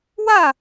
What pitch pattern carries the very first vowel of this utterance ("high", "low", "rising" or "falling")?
falling